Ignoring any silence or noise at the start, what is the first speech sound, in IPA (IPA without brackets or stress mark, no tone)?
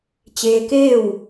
t͡ɕ